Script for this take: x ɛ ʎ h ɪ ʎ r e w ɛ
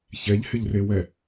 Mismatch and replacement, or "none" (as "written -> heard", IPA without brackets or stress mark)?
x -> ç